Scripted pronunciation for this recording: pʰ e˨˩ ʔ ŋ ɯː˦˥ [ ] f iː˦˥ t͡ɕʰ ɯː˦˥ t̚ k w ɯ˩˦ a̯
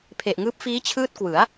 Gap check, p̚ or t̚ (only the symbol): p̚